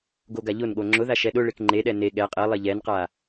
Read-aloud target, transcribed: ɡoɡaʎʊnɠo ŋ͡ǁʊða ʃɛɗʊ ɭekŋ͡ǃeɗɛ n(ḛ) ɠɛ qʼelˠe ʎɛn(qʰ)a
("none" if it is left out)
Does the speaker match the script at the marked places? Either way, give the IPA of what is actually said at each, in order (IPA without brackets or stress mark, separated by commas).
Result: e, q